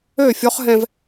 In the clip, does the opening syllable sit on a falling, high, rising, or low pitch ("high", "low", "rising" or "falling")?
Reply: falling